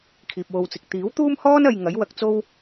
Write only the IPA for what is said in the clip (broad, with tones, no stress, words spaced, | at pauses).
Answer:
kʰiː˨p̚wo˧wt͡sɪ˨k̚ t̪iː˨˥wt̪uː˥mhɔː˥nɐ˨j ŋɐ˨˥jwɐ˨˥k̚t͡so˥w